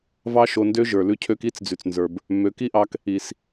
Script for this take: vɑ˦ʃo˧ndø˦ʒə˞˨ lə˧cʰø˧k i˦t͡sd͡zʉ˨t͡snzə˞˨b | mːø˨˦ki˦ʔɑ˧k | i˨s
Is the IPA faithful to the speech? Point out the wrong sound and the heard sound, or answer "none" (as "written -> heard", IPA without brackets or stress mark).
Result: ə˧ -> ʉ˧